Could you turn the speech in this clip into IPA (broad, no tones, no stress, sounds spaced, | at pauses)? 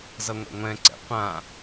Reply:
z ʌ ŋʷ ɛ̰ ŋʷ ɛ̃ ǀ ɛ̰ qʷ ã